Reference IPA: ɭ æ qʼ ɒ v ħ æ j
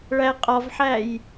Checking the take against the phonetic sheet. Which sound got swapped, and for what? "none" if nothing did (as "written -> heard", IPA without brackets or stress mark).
none